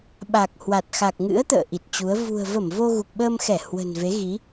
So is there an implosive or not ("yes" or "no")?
yes